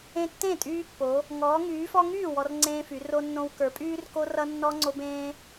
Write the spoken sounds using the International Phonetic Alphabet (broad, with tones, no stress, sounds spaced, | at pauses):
ẽ˦ tː ẽ˥˨ tʼ yː˦ pː o˨˦ | ŋ ɔː˨˦ ŋ yː˨˦ f ɔ˦ ŋ yː˥˨ w ɔ˦ r ŋ͡ǀ ẽː˦ f y˨˦ r o˦ nː õ˦ w k ə˞˨˦ pʼ yː˦ r k o˦ r ʌ˦ nː ɔ˦ ŋ͡ǀ o˦ b ẽː˦